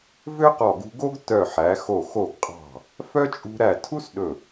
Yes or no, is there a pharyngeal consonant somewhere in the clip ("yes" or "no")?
yes